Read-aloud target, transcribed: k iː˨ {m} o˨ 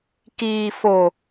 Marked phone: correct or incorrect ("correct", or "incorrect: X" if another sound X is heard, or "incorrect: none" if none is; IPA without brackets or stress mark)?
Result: incorrect: f